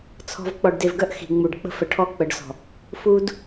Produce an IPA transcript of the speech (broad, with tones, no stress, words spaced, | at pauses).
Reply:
t͡sʰɔ̤˨v k͡pɔ˨ɖde˨vɡœ˦ʔ xi̤˨ŋ͡mu˨ɖk͡pə̤˦ fə˨ʈʰɔ˦˨ k͡pə˨˦ɖsɔ̤˨ | fu˦d